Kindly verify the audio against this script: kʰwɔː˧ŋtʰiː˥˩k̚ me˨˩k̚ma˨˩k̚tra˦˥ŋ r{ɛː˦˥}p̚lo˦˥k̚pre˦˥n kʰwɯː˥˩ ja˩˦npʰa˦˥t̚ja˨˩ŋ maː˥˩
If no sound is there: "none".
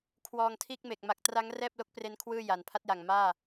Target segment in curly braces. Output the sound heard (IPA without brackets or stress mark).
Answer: ɛː˥˩